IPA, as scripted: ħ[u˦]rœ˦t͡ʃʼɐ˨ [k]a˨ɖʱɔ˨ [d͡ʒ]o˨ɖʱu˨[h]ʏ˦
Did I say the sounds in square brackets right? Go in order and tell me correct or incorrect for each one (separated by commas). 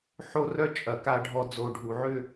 incorrect, correct, incorrect, incorrect